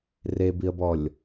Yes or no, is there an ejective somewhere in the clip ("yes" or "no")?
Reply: no